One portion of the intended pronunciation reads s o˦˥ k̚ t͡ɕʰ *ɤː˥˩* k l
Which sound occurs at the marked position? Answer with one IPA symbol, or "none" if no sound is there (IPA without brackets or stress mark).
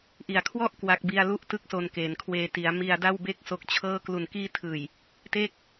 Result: ɤː˥˩